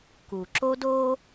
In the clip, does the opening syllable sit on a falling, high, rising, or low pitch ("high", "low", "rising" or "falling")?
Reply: low